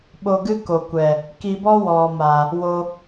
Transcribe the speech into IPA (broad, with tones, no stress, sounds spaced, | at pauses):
ɓ o˧ ɡ ɨ˦ k o˨ kʷ ɛ˨ | k i˧ b ɔ˦ w ɔ˨ m a˨ | w o˧